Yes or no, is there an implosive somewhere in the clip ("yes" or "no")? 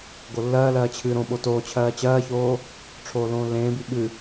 yes